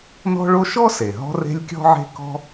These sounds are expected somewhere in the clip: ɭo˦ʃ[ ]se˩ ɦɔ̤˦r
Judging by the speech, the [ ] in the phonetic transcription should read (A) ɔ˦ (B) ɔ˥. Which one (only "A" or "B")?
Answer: B